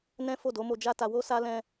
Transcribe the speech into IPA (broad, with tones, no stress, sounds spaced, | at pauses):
n ɛ̃˦ f o˦˨ d o˨˦ m o˧ d͡ʒ a˦ t a˧ w o˦ s a˦ l ɛ̃˦